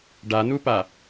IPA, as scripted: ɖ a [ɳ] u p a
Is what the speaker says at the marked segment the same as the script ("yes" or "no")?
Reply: no